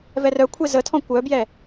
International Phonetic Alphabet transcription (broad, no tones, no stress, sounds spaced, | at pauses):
v ɛ r œ kʷʰ e z ə tʰ ɔ̃ kʷ œ b j ɛ